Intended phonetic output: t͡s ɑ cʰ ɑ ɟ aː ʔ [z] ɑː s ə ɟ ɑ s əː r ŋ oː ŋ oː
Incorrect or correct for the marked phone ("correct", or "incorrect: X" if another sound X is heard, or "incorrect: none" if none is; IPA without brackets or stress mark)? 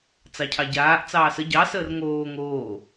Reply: incorrect: t͡s